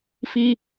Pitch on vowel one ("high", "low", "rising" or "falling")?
high